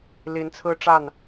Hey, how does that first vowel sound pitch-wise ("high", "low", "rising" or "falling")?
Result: rising